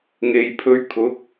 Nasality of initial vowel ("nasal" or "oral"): oral